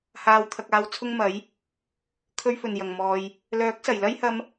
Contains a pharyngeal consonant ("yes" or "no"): no